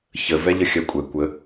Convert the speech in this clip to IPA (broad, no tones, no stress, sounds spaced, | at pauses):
ç ə v ɛ ʎ ə xʲ œ kʷʼ ɛ kʷ ə